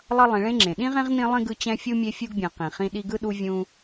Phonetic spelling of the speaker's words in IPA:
lˠʌ˦lˠĩ˨ɭẽ˥ŋ͡ǁẽ˩ ɗĩ˥ʁẽ˥ʁnĩ˦ lˠĩ˥ɡɯ˦ t͡ɕɛ̃˦fʲu˥mʲe˦ fʲu˥ɡbʲɛ̃˨qĩ˩χĩ˦ ɗi˦ɡɯ˥ɗu˦ vʲũ˦

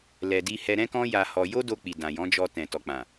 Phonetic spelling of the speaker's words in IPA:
lɛ˨di˧ hɛ˧ɾɛ̃˦kɔ̃˦ja˧ hɔ˧ jo˦do˧k͡pi˨ dã˨jɔ̃˨˦d͡ʒɔ˧ tɛ̃˨ tɔ˨k͡pã˨

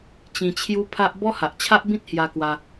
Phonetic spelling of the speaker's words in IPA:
t͡ɕĩ˧t͡ɕʰju˦pʰa˦ʔ bɔ˦ha˨ʔt͡ɕʰa˦ʔbĩ˦t̚ hja˧ kwa˧

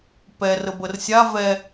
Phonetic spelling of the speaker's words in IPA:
pɛrə bərsʲa vɛ

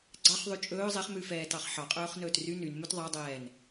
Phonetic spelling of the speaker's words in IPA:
ɡ͡ǀɑχðˤy t͡ʃʼɵː zˤeχmʉfɛːtɑχ ħɑqʼɵːχnɵːt ry nynmɵt ðˤɑdˤɛːn

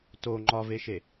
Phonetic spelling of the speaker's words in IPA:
to ŋ͡ǃɒveʃe

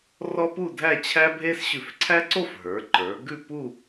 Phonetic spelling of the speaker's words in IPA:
rɔ˥pu˥˧dʱæ˥˧ t͡ɕʰæ˥bʱe˥s ɕʉ˧˩fǀʰæ˥ǀo˥˧f ɦə˞˩˧ǃə˞˩˧ ɡʉ˥˧pu˥˧

